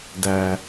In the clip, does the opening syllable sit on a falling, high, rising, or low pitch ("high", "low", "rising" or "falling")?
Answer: low